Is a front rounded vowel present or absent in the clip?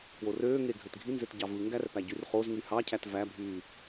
present